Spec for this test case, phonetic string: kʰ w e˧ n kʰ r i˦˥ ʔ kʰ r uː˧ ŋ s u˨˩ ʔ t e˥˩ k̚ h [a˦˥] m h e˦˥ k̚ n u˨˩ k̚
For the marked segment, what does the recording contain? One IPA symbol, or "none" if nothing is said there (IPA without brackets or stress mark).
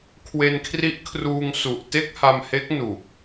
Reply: a˧